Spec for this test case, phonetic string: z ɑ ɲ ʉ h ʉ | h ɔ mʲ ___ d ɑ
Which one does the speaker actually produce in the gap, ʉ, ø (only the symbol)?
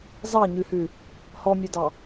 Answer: ø